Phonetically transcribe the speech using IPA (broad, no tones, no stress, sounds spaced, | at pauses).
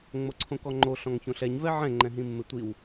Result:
ŋ͡m o ǀʰ õ k ɔ ŋ͡ǃ o ɬ ɔ̃ ŋ ç õ ɬ ɛ ɲ v ɛ ʕ ɛ̃ ŋ͡ǃ ɛ̃ ɦ ĩ mː ɪ tʷ i w